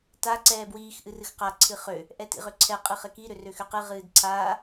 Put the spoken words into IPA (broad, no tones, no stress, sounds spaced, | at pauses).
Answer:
t a ǀ ɛː b w iː x ʔ ɨ r ɨ x q a ǀʰ ɨ χ ø | ʔ ɛ t ḭ ʁ ø ǀʰ ɛ qʼ ɨ χ ɘ k i ɾ ø r ø x ø q ɨ ʁ ɨː d ǀʰ aː